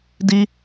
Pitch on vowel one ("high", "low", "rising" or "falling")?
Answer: high